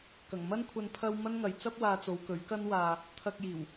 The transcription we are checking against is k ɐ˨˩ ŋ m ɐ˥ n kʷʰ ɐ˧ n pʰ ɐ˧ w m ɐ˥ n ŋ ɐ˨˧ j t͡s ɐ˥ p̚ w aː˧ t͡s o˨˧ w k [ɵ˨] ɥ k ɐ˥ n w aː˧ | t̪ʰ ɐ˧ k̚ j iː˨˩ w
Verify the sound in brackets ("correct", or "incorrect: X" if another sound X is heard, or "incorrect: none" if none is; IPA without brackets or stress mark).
incorrect: ɵ˨˥